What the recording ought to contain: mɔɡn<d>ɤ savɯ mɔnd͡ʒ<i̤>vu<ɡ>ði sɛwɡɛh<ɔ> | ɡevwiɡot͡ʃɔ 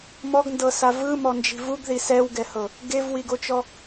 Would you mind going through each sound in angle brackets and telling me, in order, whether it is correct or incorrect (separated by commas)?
correct, correct, correct, incorrect